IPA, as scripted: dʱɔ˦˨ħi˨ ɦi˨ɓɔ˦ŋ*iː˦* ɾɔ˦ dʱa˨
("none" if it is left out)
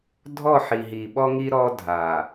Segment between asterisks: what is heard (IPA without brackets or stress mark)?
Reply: i˦